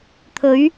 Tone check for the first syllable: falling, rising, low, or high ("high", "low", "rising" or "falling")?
rising